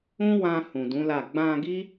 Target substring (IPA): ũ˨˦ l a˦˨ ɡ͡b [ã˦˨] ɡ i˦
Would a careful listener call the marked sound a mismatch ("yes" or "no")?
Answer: yes